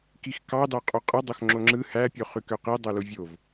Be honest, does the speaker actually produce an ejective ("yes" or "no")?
yes